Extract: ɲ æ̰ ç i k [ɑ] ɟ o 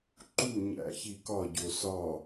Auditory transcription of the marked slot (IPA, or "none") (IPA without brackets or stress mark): ɒ